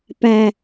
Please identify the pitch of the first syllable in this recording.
low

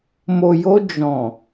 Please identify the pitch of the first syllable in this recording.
low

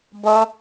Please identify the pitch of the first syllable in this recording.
high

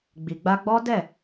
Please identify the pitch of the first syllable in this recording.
low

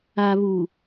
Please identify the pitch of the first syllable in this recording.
low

